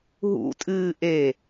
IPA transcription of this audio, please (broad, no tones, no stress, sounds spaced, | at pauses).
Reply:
ɦ ṵ tʼ ɨː ʔ e